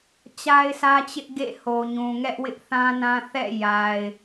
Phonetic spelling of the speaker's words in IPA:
t͡ɕ a˦ ɪ̯ sʰ ä˦ t͡ɕ ɪ˦ ʔ ɡ ḛ˦˨ h o˨ ɲ ũ˨ ŋ ɛ˦ ʔ w ɪ˦ ʔ θ ã˦ n ã˦ θ ɛ̰˦˨ j a˨ ɪ̯

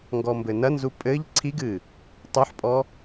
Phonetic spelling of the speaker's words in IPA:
ŋ ɡ ɔ m b ɘ n ɐ n z u pʼ ɘ ʎ ǀʰ i ɡ ɨ | tˤ u ħ pʼ ɔ

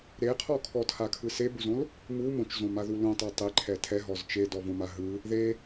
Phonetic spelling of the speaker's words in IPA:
ɾ e qʰ ɔ kʰ ɔ tʰ a kʰ ɯ s e b u z õ l | m u m õ t͡ʃ z õ m a ð u l ũ tˤ ɛ tˤ e ǃʰ ɛ tʰ ɛ ɦ ɔ z t͡ʃ e d ɔ v õ m a ɦ ɯ | ð e

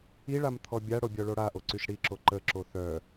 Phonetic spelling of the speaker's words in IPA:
i ɭ a m t̪ʰ ɔ bʲ a ɽ o bʲ ɔ ɭ o ɽ a ʔ o ǀ y ʃ ɽ i ǁ o ǃ ə ǁ o θ œ

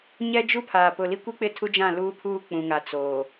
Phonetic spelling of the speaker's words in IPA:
ɲ ɛ˦ d͡ʒ u˦ pʰ aː˨ p ʊ˨ l i˦ kʷ i˦ k͡p ɪ˦˨ tʰ u˦ d͡ʒ ã˦˨ l uː˦ pʰ uː˦ k͡p ũ˨ ŋ a˨ t͡s oː˨

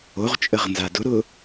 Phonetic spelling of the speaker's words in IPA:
o ʁ t͡ʃʼ ə ʁ n z a d ʊ ɾ ʊ

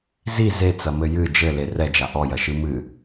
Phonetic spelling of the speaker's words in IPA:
z i z e t͡s ɐ m ɘ j ɨ d͡ʒ ɘ l e r ɛ d͡ʒ a ʔ ɔ j ɐ ʃ ɨ m ɨ

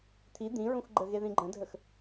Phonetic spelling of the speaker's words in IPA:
t̪ʰ i d̪ ĩ ɹ ũ x ɡ͡ǃ ə ɣ e ð ĩ ɡ͡ǃ ə̃ dʱ ə x

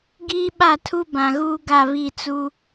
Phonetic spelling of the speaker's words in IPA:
ɡ iː˦ ɓ a˦˨ tʰ u˦ b ã˨ ɣ uː˦ ɡ a˦˨ β i˦˨ t͡s u˦

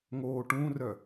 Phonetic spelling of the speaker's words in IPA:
ŋ oː ʈ ũ r œ

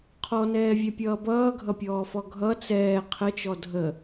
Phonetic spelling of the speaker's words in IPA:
qʰ ɔ n ɛː vʲ ɛ pʲ ʌː b ʌː ɡʱ ʌ pʲ ɔː f ɔ ɡʱ ʌ t͡s ɛː qʰ ə t͡ʃ ɔ dʱ ə

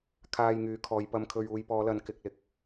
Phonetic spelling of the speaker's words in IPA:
kʰ aː˧ j ŋ yː˨˧ kʰ ɔː˨˧ j p ɐ˧ m kʰ ɵ˧ ɥ uː˧ j p ɔː˨˧ l ɐ˨˧ n k ɪ˨ k̚ l ɪ˨ k̚

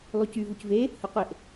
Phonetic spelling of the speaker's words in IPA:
lˠ y c y v u c v e | h ɯ qʷ e ʔ

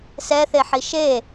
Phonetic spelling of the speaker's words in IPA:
s ɛ θ e ħ i ʃ e

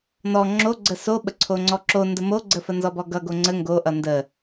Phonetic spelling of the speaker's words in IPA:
n ɔ ŋ͡ǁ o ɡ͡ǀ ə s o ɓ ə ǀʰ o ŋ͡ǀ ɔ ǁ o n d ə m o ɡ͡ǀ ə f ə n z ɔ b ɔ ɡ ʌ ɡ o ŋ͡ǀ ə ŋ ɡ o ʔ ʌ n d ə

